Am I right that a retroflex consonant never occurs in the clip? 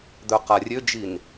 yes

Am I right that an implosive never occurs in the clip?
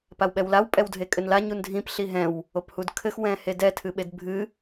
no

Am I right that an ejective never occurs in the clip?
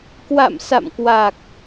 yes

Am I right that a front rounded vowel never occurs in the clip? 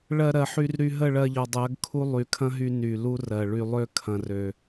no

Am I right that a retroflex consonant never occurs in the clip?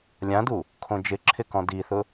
yes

